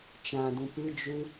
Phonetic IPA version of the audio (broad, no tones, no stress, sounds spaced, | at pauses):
t͡ʃ ã d ũ p ɨ d͡ʒ ʉ